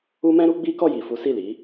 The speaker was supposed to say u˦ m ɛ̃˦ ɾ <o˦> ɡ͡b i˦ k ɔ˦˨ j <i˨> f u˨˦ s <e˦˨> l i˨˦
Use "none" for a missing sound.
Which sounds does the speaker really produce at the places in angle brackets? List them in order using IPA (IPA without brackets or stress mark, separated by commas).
u˦, i˨, i˦˨